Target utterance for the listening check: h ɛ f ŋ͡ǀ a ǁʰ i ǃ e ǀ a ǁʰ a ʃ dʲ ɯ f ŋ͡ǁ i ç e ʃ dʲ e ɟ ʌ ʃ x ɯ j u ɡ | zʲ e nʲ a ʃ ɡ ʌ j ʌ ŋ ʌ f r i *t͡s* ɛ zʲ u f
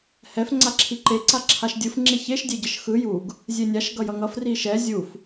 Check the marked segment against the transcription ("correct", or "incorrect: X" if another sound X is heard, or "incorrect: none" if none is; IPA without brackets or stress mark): incorrect: ʃ